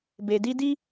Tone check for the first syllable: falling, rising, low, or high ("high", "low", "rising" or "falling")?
low